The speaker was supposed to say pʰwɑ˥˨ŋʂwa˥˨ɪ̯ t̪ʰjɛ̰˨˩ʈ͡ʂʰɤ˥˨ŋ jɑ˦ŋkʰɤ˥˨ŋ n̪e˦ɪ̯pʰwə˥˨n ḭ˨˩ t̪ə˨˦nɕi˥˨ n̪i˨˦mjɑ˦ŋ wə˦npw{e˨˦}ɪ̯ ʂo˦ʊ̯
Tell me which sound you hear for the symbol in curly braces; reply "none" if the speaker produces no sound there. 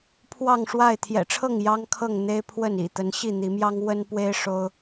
e˦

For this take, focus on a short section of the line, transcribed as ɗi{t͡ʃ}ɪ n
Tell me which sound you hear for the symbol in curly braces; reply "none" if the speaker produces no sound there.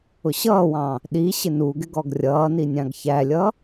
ɕ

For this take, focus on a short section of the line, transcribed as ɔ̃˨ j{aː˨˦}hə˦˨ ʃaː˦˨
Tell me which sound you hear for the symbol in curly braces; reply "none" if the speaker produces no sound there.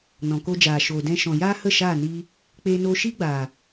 aː˦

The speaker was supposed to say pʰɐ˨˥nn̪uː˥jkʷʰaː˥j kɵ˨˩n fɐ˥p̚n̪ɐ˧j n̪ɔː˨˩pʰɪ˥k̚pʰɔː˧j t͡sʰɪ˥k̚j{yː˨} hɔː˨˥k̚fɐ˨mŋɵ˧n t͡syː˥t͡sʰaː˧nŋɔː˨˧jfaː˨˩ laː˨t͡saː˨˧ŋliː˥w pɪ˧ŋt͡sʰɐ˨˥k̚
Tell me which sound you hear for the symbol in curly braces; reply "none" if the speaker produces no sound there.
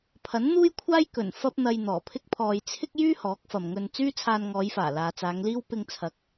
yː˥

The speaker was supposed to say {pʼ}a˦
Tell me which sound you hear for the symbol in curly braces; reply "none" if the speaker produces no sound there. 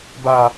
b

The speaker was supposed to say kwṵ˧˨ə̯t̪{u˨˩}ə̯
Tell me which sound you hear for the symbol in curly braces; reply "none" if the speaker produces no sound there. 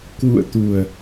u˨˩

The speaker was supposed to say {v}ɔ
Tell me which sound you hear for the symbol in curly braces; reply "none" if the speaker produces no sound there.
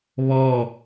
β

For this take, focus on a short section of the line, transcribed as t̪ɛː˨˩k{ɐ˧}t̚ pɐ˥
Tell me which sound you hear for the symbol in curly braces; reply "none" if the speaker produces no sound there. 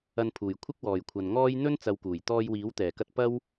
ɐ˧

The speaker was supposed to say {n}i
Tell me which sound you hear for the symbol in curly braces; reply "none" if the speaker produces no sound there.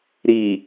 ɾ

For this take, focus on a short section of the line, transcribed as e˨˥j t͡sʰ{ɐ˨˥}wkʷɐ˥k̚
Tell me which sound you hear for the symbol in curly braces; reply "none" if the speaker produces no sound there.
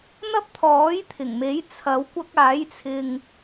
ɐ˨˥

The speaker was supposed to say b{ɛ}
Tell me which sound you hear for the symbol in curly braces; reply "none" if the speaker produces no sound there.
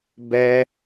ɛ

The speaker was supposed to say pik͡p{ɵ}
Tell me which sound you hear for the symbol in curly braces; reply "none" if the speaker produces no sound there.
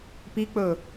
ɵ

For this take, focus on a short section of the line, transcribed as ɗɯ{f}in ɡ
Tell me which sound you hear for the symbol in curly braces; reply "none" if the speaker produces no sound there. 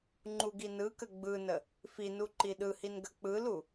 h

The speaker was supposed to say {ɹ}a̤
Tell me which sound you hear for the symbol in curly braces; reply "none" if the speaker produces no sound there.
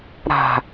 ɾ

